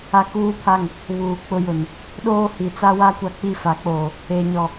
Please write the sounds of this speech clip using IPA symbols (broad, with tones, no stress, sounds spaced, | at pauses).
a˦ k uː˦ pʰ a˦˨ ŋ | β uː˨ k͡p ʊ˦ j ʊ˨ n | ɗ oː˦ h i˨ t͡s a˦ w a˦ kʷ a˦ k͡p i˦˨ f a˨˦ k͡p oː˨ | e˨ ɲ ɔ˨